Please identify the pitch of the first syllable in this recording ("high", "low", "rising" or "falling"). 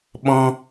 high